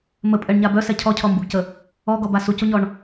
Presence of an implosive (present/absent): absent